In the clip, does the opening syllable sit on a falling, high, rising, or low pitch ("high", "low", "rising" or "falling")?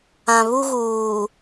low